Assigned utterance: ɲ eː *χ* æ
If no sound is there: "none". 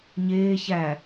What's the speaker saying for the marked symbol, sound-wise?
ç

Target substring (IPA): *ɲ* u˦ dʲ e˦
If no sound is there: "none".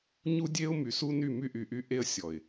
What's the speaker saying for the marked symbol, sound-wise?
ɲ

